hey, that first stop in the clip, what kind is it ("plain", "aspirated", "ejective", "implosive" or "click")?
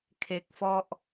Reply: aspirated